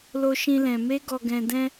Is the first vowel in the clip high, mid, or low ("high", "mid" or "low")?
mid